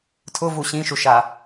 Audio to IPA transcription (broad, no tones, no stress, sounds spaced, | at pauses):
tʰ ʊ v u ɕ ĩ ʃ u ʃ a